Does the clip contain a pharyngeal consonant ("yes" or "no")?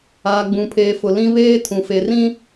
no